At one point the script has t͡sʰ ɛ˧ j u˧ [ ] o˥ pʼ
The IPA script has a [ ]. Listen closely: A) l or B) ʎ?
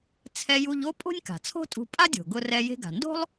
B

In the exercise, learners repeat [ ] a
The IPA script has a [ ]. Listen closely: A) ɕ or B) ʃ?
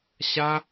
A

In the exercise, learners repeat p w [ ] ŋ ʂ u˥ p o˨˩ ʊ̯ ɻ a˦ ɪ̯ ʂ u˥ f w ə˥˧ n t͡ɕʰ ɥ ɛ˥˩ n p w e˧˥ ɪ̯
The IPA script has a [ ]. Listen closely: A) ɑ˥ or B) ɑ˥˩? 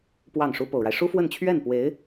B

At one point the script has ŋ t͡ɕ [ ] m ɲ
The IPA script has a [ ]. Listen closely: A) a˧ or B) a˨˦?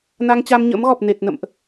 A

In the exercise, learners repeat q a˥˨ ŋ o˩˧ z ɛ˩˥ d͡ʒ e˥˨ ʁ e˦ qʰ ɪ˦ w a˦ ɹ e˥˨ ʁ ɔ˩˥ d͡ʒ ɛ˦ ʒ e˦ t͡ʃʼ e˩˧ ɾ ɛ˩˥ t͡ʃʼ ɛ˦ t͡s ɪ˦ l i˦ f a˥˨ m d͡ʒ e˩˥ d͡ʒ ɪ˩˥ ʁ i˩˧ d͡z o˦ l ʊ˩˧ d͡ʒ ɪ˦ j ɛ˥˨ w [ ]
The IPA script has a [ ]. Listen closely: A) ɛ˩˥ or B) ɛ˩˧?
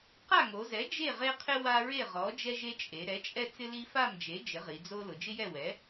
A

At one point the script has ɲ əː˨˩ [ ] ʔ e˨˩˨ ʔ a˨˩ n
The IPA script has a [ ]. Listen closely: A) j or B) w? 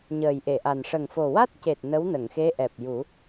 A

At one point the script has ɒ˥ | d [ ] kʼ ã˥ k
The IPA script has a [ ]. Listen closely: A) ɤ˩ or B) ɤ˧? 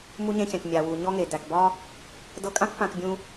B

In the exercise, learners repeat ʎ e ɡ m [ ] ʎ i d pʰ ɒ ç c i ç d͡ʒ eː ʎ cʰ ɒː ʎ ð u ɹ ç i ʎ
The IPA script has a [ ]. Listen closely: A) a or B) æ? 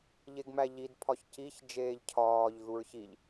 B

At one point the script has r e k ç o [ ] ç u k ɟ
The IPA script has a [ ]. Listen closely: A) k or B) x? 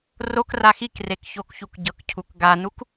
A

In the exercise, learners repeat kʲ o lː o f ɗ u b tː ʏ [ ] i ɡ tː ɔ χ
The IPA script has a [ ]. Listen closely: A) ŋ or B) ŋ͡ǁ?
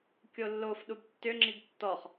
B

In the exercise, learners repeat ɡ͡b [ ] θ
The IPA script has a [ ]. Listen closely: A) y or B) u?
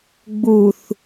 B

